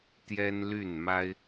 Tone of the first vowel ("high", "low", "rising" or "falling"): high